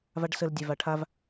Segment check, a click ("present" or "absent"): absent